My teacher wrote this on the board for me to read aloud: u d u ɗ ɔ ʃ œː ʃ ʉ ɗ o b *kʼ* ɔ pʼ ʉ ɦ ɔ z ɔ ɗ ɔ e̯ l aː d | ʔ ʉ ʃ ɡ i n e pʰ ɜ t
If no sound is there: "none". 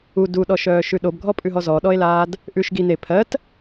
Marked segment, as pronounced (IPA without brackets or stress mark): ɡʱ